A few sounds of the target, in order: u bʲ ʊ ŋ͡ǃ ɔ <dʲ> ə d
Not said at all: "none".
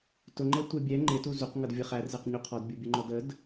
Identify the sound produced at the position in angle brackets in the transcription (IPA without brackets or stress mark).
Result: d